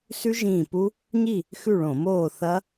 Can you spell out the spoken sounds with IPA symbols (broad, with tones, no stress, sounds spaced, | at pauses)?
s ʉ˦˥ ʒ ĩː˧˩ p u˦˥ | ɲ i˥˨ | x ʉ˥˨ ɭ õ˧˩˧ m oː˥˨ θ ɐ˦˥